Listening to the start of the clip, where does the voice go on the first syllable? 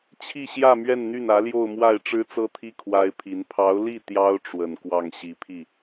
falling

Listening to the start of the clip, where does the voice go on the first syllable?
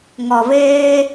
low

